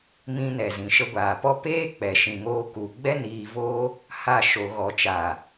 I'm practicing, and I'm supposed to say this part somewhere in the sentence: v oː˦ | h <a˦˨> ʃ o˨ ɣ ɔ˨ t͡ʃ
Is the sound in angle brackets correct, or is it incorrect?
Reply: correct